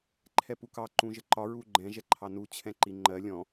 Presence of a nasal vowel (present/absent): present